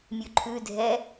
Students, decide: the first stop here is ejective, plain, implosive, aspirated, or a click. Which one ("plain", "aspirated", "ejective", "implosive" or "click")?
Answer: click